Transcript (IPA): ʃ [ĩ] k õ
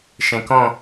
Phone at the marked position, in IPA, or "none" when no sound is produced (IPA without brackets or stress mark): ẽ